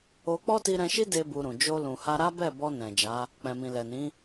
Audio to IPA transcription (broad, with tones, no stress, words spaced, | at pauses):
o˧ k͡pɔ˦ti˧ɾɛ̃˧ʃi˦ de˦bu˧ɾũ˨ d͡ʒo˧lũ˨ha˧ ɾa˦bɛ˦˨bɔ˧ nɛ̃˨d͡ʒa˨˦ | k͡pɛ̃˨mĩ˨lɛ˨nĩ˨˦